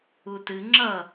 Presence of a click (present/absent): present